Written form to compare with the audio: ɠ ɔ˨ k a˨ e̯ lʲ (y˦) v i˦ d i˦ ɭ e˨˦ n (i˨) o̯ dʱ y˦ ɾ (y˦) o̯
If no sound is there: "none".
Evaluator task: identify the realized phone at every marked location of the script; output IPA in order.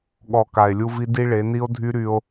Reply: u˦, i˦, y˦

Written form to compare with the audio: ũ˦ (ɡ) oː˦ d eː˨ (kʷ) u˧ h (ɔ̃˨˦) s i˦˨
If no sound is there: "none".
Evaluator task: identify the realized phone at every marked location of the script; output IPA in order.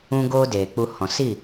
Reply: ɡ, k͡p, ɔ̃˨

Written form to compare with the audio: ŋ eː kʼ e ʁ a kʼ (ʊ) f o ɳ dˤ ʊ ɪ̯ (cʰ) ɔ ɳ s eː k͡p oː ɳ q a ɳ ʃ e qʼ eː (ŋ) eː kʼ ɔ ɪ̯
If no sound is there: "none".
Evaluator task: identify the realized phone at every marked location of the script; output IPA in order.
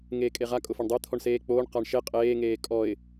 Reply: ʊ, t̪ʰ, ŋ

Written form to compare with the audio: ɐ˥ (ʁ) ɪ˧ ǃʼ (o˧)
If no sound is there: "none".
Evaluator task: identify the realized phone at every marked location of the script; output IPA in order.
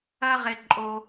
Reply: ʁ, o˧

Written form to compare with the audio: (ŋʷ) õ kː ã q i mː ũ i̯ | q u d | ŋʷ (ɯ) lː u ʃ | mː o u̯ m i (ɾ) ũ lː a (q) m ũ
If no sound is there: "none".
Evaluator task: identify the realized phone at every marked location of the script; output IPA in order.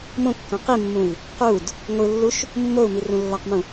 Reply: m, ɯ, r, q

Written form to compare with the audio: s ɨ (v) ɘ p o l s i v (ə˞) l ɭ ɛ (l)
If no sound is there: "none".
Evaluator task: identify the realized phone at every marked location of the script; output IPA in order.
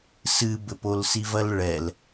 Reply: b, ɐ, l

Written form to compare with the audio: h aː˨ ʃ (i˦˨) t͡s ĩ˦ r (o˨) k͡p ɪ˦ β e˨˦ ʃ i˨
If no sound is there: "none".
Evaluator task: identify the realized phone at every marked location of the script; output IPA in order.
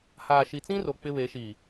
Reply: i˨, o˨

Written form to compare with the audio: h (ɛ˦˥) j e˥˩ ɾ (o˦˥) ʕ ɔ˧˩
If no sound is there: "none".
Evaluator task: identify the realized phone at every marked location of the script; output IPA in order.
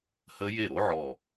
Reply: ə˦˥, o˦˥

